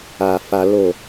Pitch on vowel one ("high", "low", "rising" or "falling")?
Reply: low